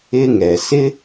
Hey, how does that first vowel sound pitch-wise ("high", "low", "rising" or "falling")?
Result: high